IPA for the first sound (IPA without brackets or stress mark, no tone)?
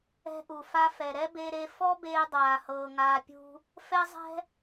ɛ̤